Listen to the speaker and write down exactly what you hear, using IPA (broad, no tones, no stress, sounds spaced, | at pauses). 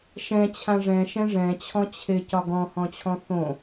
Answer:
ʃ ɛ̃ t͡ɕʰ ã ʐ ɛ̃ ʃ ɛ̃ ʐ ɛ̃ t͡ɕʰ ɔ̃ t͡ɕʰ ɪ c ɒ ɡ ɔ̃ h ɔ̃ t͡ɕʰ ɔ̃ θ õ